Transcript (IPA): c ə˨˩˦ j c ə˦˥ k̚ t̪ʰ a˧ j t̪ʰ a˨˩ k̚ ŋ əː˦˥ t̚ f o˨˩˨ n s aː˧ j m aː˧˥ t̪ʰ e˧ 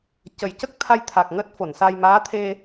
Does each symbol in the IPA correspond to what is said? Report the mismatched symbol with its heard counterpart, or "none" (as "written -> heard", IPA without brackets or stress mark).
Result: none